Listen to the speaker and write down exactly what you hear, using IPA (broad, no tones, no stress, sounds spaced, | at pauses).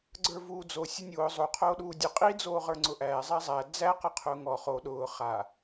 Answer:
ɡ͡ǀ ə˞ v uː d͡z o sʲ ʊ nʲ ʊː zˤ o qʰ oː ɗ uː dʲ ʌ qʼ i d͡z oː ʁ ə˞ ŋ͡ǀ ʊ ʔ æː zˤ a zˤ æ d͡z æ q ʌ qʰ ʊː ŋ ɔ χ o ɗ ʊː χ a